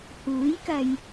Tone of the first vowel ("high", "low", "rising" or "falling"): rising